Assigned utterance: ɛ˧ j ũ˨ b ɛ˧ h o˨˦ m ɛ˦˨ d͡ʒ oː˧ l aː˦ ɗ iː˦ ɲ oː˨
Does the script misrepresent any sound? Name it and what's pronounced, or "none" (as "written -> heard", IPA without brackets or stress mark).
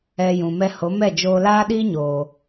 b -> m